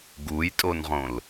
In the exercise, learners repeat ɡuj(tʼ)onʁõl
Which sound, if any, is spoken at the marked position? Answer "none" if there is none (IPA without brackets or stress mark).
tʼ